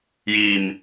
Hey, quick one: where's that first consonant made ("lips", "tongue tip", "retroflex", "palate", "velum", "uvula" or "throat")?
palate